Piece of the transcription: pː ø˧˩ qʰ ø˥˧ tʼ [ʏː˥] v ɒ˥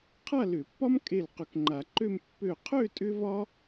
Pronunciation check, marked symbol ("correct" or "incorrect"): incorrect